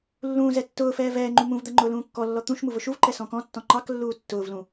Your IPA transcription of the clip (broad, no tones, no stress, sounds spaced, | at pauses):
lː ũː z ɛ tː ʊː f ɛː v ɛː ŋ͡ǃ ũ m ũ v d̪ ɜ ŋ͡ǃ ʊː l ũː kː ɔ lː ɔ t̪ ũ ʃ m u v ʊ ʃ u v ǃ ɛ s ɔ̃ k ɔ̃ tː ɔ̃ ŋ͡ǃ ɑ k lː uː tː ʊː v l ũ